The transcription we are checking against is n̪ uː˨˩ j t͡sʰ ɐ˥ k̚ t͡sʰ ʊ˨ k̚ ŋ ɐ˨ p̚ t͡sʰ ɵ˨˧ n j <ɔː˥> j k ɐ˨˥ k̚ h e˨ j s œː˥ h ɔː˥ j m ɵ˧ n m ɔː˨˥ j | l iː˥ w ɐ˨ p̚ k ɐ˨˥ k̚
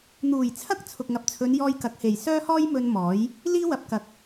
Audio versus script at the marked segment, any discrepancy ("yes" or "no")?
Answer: yes